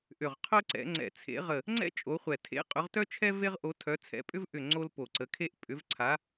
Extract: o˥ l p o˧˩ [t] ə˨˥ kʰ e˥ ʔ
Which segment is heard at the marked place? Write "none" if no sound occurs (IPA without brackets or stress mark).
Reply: ǀ